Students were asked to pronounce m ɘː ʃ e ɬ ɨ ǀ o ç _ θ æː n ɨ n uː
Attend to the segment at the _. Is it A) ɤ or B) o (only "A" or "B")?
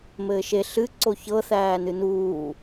A